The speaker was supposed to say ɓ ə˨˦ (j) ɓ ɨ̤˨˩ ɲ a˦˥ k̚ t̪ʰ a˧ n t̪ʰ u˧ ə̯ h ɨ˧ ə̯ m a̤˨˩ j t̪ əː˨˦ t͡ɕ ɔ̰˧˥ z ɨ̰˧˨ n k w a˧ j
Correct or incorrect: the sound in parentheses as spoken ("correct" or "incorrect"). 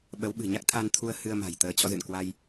incorrect